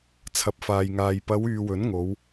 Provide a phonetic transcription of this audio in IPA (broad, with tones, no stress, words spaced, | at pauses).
t͡sʰɐ˨p̚faː˨jŋaː˨j pɐ˨˧w yː˨wɵ˨˥nŋo˨˧w